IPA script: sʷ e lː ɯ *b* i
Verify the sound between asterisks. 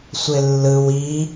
incorrect: w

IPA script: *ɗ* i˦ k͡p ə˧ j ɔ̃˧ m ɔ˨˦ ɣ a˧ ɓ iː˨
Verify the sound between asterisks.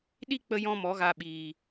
correct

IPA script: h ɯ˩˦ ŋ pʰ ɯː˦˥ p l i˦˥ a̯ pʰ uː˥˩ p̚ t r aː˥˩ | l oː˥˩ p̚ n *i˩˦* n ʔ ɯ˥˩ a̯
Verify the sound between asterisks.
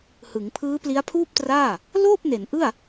incorrect: e˩˦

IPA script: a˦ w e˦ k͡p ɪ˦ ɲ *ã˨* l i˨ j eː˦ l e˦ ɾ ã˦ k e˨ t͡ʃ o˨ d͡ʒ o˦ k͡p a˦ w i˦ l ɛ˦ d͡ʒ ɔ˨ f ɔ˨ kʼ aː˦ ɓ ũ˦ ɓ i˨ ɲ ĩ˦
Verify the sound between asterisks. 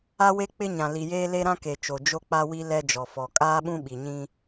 correct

